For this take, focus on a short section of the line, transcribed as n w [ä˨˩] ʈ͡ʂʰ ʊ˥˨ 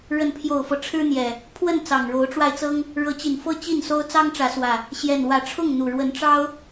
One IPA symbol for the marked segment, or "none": ä˨˦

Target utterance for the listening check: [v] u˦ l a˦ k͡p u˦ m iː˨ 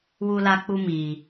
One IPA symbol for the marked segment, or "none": w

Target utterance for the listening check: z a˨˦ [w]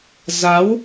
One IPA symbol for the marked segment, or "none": w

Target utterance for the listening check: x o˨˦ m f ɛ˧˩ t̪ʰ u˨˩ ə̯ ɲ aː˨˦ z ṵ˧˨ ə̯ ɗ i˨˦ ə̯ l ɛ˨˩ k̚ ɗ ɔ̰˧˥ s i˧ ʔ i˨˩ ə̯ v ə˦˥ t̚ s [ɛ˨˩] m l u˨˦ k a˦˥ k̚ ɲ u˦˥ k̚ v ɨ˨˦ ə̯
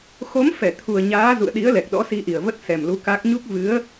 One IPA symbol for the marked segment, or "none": ɛ˨˩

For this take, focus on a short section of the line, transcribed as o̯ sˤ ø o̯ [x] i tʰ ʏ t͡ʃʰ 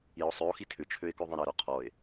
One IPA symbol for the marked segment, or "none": x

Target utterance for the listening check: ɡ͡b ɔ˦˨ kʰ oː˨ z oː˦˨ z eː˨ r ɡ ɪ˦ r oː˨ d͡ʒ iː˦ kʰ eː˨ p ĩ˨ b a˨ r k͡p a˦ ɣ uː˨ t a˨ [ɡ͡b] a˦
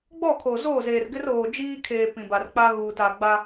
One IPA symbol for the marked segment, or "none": ɡ͡b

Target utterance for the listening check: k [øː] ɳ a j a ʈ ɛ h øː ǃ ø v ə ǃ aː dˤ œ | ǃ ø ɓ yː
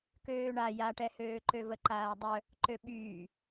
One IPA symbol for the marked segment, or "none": øː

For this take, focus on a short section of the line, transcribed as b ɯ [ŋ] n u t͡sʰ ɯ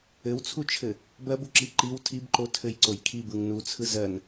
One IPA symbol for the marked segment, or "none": ŋ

